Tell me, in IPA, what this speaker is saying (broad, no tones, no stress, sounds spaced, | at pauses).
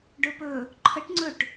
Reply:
ɖ ɵ p ɵ | ǃʰ ə ʈ ŋ͡ǀ ɵ ʈ